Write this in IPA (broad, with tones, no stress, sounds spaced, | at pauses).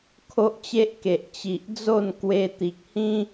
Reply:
kʰ o˦ ʔ t͡ɕ e˦ ʔ k e˨ ʔ t͡ɕ i˨ ʔ d͡z o˥˧ n k w e˧ t̪ i˨ k̚ h ĩ˦